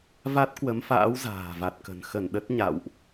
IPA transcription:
va˦˥t̚ kwə˨˦mfa̰ː˧˥w za̤ː˨˩va˨˩t̚kə̤˨˩n xə˧˩n ɗə˦˥t̚ ɲa̰˧˨wʔ

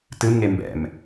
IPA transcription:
tɨmŋe mbɛ̰m

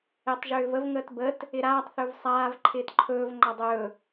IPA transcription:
etˤʒʏːvəv ŋəːtbət | ɪɾaːtˤ θɵvsˤaːv ǃʰɪːtǃʰɵːv ŋ͡ǃɒdˤɵː

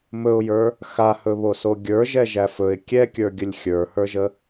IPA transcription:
mɵʊ̯jə˞ | xahɵβoso ɡʲə˞ʒɛʒæ fɵɪ̯ kʲɛkʲə˞ɡʲəlʲ xʲə˞hə˞ʒə

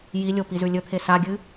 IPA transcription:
jilʲo pizʉlʲɵt̪ʰe saɡʲɨ

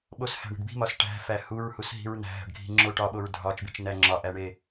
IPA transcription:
ɓoshæ̤ɳi̤ɖ bi̤mɒs ʈæ̤fæ huɹhusɦi̤ɹ n̪æ̤ɦæ̤ɖɡʱi̤ŋ͡ǁo ʈɒɓoɹ dʱɒt͡ʃbit͡ʃn̪æ ŋ͡ǁɒʔæɳe

